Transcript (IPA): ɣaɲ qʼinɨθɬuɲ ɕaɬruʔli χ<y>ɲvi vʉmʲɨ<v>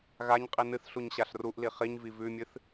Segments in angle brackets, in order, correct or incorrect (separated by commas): incorrect, incorrect